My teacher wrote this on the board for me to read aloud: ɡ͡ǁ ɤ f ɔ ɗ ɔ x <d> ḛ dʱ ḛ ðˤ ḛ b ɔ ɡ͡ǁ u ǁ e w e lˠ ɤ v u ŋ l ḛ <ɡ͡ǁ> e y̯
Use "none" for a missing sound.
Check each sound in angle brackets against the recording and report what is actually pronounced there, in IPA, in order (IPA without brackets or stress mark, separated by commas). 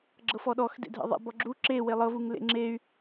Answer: d, ŋ͡ǁ